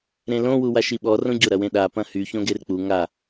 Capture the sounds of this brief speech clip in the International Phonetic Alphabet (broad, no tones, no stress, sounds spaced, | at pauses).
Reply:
ɾ ẽ l õ w u w a ʃ i ɓ ɔ r õ ɟ ʊ ɾ ɐ w ẽ ɗ a p ɐ̃ h y ç õ ɡ e r k͡p u ŋ a